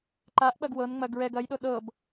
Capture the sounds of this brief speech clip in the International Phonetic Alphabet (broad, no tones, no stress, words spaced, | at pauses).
ǃaʔɓɐɡ wɤnŋ͡mɐ ɡɹɛɡ ɐjɗo ɗɤb